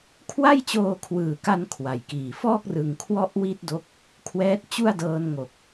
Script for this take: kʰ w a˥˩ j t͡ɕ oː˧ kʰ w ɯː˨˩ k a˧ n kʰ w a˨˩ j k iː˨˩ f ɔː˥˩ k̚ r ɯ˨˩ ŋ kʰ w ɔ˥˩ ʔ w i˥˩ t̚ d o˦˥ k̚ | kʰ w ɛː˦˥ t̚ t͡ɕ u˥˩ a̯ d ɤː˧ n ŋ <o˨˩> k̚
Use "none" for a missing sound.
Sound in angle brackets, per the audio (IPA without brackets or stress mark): o˨˩